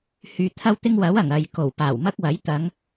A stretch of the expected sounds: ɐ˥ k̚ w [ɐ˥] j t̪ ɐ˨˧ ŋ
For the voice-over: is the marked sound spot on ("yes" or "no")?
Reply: no